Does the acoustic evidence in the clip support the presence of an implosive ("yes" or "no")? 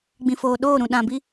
yes